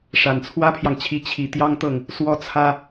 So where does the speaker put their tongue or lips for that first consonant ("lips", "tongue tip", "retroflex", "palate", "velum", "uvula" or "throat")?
retroflex